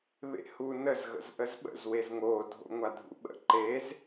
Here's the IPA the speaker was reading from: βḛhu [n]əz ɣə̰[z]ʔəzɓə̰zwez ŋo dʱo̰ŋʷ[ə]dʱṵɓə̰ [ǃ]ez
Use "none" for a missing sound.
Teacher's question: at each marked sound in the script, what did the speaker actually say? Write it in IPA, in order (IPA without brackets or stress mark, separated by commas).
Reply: n, z, a, ǃ